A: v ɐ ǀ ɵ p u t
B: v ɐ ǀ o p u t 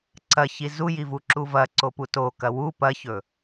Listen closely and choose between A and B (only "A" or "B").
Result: B